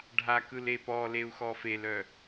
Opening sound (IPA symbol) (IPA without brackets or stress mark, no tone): ɖʱ